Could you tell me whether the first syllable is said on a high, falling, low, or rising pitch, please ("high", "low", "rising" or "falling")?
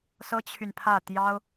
high